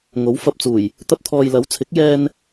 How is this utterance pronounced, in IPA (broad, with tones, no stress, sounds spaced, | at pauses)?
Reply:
ŋ o˨˥ w f ɐ˨ p̚ t͡s uː˨˩ j | t̪ ɐ˧ p̚ t̪ʰ ɔː˨ j l ɐ˨˥ w t͡sʰ ɪ˨˥ k̚ j ɛː˧ n